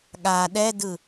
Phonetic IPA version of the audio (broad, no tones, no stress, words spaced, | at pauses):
ɠa ɗɛdɯ